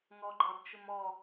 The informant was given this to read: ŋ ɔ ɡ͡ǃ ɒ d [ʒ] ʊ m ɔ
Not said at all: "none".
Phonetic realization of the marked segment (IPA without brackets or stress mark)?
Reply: t͡ʃ